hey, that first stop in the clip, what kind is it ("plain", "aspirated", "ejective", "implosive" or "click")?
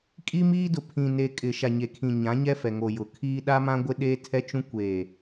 ejective